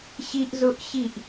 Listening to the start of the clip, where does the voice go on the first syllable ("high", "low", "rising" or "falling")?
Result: high